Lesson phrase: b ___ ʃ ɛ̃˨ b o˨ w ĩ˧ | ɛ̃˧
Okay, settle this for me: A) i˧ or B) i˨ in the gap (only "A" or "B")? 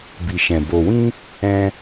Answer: B